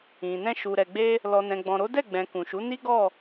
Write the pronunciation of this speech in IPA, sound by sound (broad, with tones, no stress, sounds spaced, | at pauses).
ĩ˨ n ɛ̃˧ ʃ u˨ ɾ ɛ˨ ɡ͡b e˧ | l ɔ˨ n ɛ̃˨ ɡ͡b ɔ̃˨ ɾ o˨˦ d ɛ˦˨ ɡ͡b ɛ̃˨ k ũ˨ ʃ u˨˦ n i˦ ɡ ɔ˦˨